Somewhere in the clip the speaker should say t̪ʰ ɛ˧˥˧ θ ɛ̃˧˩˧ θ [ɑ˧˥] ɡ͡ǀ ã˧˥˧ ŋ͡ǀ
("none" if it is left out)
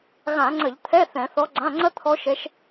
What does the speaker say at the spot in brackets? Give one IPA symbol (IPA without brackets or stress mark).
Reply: ɔ˧˥